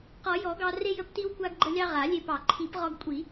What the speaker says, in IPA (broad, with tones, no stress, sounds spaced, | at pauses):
q ɔ˨˩˦ j ɔ˨˩˦ ɡ ɑ˧ r e˧ j ə˧ p t i˧ w kʷ a˧ ɡ ɡ͡ǃ ə˧ lʲ ɑ˧ ʁ a˨˩˦ lʲ e˧ p ɑ˨˩˦ ǃʰ i˨˩˦ p ʁ ɔ˧ ɡ kʷʼ i˨˩˦